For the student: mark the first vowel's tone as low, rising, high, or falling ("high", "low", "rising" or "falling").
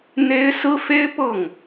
high